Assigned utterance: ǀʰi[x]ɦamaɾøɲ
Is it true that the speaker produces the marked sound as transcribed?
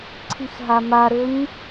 yes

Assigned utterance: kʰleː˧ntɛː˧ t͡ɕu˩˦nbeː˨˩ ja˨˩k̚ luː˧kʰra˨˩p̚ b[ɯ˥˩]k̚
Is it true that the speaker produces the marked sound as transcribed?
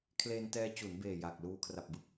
yes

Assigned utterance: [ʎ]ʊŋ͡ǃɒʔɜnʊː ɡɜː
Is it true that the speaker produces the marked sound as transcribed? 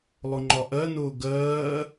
no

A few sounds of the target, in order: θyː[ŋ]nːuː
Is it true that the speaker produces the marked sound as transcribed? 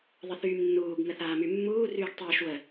no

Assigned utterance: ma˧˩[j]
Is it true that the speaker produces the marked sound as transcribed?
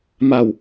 no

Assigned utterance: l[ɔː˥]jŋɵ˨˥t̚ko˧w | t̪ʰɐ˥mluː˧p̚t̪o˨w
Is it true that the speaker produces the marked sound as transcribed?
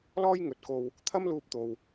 yes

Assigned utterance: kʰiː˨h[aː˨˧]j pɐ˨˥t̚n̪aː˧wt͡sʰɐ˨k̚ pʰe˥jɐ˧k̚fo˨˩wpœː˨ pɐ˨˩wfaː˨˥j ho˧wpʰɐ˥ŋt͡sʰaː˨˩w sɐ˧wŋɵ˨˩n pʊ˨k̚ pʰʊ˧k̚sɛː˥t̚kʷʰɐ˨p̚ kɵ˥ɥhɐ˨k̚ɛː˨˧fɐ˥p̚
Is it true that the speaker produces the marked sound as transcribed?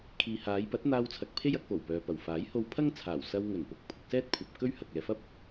yes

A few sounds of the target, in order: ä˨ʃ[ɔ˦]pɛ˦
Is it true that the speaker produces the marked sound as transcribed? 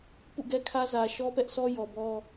yes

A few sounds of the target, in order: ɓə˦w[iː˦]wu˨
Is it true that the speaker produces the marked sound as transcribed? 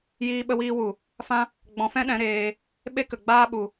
yes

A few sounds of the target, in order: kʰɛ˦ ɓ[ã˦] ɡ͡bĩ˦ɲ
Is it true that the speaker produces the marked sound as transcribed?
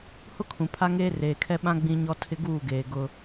yes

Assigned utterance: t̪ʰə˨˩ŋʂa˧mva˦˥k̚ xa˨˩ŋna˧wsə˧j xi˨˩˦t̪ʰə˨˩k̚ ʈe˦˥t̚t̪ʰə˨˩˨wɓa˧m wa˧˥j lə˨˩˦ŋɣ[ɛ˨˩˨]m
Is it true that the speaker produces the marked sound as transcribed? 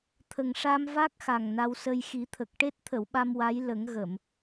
no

